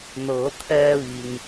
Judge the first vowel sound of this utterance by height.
mid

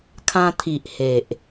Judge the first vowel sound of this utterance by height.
low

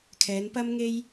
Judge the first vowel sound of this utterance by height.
mid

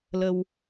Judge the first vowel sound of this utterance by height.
mid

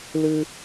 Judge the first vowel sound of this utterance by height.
high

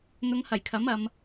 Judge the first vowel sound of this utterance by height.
high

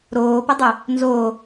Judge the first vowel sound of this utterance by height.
mid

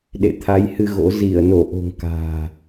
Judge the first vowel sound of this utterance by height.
mid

